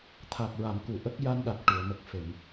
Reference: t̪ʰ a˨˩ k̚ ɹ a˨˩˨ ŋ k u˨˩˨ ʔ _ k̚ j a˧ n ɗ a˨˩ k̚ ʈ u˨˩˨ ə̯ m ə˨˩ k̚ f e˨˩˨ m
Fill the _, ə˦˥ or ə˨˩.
ə˦˥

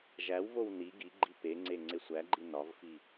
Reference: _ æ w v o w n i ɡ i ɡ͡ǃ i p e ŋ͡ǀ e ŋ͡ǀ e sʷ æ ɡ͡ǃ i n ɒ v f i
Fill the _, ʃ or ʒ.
ʒ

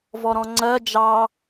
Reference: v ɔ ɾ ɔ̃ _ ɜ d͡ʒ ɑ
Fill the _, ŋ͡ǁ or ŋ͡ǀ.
ŋ͡ǀ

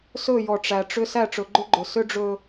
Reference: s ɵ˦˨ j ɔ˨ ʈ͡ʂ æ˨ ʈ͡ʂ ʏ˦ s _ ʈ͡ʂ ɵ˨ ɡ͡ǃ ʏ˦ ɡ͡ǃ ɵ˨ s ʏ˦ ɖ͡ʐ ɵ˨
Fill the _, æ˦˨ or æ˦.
æ˦˨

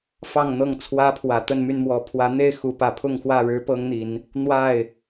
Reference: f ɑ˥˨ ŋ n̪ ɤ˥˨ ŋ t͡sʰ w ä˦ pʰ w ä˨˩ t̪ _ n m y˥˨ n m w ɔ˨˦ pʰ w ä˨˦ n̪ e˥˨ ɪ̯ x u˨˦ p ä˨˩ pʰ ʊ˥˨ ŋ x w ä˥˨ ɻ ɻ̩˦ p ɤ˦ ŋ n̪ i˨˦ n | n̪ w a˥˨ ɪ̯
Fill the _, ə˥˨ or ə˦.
ə˥˨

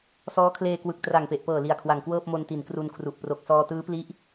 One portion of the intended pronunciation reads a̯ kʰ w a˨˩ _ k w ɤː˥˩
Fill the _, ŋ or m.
ŋ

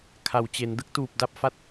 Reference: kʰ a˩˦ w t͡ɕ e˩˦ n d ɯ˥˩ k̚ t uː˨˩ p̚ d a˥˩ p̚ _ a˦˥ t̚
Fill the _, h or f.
f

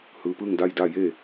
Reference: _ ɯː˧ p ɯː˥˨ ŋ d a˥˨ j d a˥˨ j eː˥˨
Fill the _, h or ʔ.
h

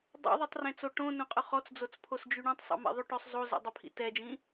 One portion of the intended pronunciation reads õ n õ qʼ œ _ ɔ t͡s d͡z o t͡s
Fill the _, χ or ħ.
χ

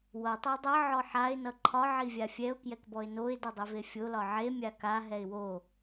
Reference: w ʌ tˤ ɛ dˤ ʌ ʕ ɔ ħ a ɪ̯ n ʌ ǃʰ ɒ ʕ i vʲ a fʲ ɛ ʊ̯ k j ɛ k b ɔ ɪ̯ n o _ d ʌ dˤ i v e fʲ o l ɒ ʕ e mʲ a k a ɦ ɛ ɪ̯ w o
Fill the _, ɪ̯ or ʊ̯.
ɪ̯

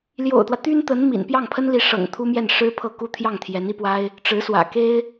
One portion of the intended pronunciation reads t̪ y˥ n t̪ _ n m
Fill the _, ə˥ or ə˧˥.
ə˧˥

